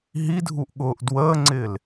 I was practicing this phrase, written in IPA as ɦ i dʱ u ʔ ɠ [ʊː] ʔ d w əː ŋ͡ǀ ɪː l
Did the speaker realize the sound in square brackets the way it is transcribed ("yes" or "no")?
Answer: yes